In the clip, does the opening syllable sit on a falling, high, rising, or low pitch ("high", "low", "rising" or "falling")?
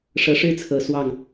rising